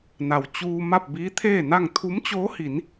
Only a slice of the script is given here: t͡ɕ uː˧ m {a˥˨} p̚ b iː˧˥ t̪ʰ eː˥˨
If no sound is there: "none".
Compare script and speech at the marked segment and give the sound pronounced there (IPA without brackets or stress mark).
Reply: a˥˨